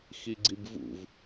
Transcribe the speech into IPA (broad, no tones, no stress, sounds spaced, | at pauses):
x i ɡ͡ǀ i b v ṵ v